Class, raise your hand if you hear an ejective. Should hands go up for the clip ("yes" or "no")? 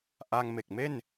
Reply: no